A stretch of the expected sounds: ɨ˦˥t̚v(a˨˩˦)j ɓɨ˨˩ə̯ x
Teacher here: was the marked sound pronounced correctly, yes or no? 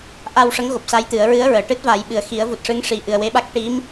yes